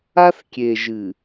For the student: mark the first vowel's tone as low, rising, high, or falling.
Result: high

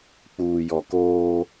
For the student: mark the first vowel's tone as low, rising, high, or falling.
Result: low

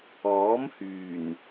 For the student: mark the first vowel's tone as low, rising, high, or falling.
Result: rising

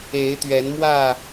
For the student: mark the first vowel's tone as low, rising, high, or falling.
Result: rising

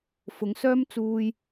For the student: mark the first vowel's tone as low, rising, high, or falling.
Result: rising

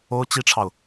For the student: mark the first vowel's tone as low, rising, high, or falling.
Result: high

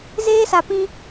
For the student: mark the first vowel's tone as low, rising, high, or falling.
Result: high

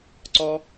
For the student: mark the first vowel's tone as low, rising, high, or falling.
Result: high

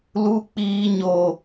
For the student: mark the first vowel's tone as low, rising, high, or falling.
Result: high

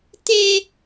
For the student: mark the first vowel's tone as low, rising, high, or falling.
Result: high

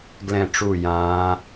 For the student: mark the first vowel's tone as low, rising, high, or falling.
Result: falling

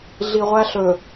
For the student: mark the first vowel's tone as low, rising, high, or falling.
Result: low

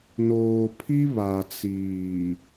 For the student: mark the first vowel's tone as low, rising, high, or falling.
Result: low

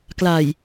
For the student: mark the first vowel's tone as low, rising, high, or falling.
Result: low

